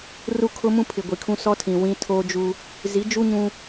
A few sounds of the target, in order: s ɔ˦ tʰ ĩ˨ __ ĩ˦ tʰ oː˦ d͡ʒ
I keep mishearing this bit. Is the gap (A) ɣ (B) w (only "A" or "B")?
B